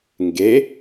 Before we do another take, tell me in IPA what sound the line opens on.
ŋ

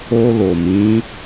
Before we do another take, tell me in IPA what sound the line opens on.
o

